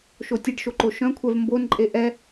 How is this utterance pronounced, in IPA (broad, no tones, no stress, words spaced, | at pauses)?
ʃotʲeɖʃoǃo ʃœ̃kʷʰɛv mbon ǃʼeʔɛ